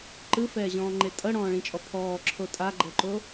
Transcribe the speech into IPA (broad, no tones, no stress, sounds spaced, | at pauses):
ǃ ɯ f ɛː ʑ ɔ̃ː ŋ͡ǃ e tʼ ɤ ɽ ɔ̃ː ɭ ĩ t͡ʃʼ ɔ pʰ ɔː ǁʰ o tʼ a ɡ͡ǃ ɤ ǃ o